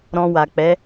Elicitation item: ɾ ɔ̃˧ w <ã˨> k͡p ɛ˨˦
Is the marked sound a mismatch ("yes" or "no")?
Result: yes